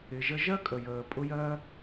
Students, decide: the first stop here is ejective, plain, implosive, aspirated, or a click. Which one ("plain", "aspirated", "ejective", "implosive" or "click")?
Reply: ejective